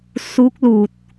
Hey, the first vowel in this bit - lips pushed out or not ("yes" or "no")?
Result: yes